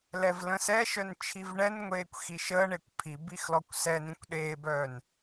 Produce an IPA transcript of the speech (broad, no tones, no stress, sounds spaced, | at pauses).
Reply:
l ɛ v l ə̃ s ɛ ʃ œ n t͡ʃʰ i v ɳ ɛ n ŋʷ eː kʷ x i ʃ əː ɳ e kʷ pʰ i b i x l ɔ kʷ s ɛ n ĩ kʷ ɗ eː b œː n